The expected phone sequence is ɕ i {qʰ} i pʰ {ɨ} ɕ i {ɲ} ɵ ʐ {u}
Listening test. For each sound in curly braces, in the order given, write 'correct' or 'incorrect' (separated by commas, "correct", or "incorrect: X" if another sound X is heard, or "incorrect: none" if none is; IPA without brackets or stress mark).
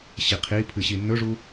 correct, correct, incorrect: nː, correct